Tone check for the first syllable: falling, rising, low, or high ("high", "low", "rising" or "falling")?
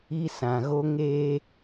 high